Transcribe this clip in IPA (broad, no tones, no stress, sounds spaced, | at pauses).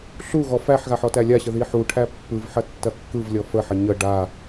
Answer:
ɬ u ɣ ɔ f æ ħ ɣ a ħ ɔ t æ lʲ a ɕ ə ð i ħ u ʈʰ æ pː ɯ v ħ ɐ tː ɐ kː ɯ v lʲ ɔ f ə ħ ɐ ɲ ə ɖ a